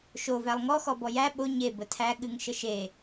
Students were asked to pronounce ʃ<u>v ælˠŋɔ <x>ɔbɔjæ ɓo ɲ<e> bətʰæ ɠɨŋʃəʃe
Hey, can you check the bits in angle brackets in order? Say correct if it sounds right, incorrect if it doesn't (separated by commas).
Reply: incorrect, correct, correct